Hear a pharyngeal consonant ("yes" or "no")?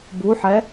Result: yes